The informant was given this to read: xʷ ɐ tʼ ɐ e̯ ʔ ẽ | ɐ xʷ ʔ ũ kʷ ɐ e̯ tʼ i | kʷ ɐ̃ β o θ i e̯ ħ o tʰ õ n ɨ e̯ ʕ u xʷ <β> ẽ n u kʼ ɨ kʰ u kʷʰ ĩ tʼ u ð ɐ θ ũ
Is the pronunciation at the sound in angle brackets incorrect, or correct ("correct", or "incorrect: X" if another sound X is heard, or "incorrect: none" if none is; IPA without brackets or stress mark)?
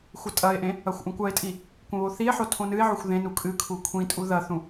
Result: incorrect: ð